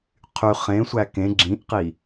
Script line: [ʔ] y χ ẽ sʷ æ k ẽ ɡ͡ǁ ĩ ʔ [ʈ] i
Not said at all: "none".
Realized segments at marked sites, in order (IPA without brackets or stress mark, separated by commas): qʰ, q